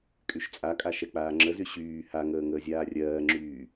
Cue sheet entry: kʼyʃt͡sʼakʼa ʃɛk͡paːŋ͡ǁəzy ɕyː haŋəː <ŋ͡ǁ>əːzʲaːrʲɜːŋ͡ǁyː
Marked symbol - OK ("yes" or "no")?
no